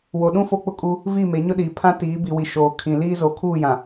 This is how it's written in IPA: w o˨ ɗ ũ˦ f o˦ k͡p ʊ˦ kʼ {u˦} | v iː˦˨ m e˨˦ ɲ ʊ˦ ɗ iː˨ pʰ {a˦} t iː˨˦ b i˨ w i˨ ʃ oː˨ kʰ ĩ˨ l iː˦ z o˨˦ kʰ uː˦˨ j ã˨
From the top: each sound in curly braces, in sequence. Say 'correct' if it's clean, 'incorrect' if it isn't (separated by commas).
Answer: correct, incorrect